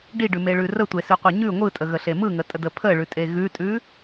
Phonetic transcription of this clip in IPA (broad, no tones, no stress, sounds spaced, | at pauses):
ɖ i ɖ ʉ m e ɭ ʉ r ə tʷ e s ʉ qʷ e ɲ ʉ ŋʷ ɯ tʼ ə ɣ ə ɬ e m ɯ ŋ ə tʼ ə d ə pʰ ə ɭ ʉ tʼ e ɣ ʉ tʼ ʉ